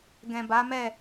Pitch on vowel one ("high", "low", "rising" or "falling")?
low